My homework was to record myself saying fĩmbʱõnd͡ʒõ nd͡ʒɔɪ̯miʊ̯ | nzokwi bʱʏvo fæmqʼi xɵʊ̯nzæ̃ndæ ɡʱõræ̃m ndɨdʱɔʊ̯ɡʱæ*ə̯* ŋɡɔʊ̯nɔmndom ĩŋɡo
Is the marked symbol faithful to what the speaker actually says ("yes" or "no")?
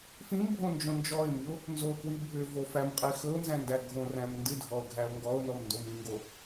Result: no